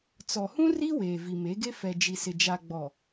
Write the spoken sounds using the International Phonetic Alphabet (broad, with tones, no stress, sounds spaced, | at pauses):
t͡s ɔ˨ h ũ˦ r i˦ w eː˨ v i˨ m e˨˦ ɡ e˦ f ɛ˨ d͡ʒ i˨ s ɪ˨ d͡ʒ a˨ ɡ͡b ɔ˨